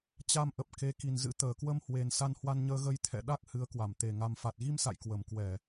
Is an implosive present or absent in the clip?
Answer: present